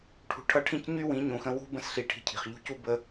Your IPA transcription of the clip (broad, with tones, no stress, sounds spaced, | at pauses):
ʈʰ ṳ˨ ʈʰ ʌ˧ ʈʰ ĩ˧ c ɲ y˦ w ĩ˨˦ ɲ ũ˨ x ə̃˧ w ṳ˦ b ə̃˧ s ɬ i˨ ʈʰ i̤˧ cʰ i̤˨ χ ʎ ṳ˦ c u˦ b ə˧